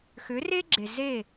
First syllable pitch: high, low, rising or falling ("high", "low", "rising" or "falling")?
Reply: rising